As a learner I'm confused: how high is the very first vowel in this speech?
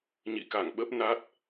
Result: high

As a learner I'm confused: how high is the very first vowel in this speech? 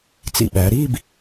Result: high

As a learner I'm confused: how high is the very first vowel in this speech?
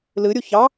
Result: high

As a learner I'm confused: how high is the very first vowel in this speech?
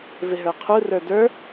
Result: high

